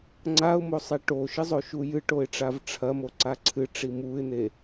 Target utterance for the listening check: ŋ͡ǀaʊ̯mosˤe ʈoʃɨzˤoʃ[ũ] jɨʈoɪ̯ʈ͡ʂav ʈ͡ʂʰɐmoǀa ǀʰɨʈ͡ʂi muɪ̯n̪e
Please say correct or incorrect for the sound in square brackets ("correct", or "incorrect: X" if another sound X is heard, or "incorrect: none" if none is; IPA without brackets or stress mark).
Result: incorrect: u